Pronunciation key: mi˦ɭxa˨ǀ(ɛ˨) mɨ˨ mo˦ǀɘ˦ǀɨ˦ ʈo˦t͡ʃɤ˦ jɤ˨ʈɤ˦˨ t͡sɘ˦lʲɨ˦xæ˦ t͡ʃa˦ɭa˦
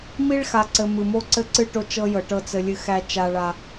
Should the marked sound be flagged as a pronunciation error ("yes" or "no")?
yes